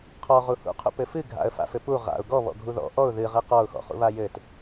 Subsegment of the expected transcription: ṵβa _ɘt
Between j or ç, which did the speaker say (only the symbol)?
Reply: j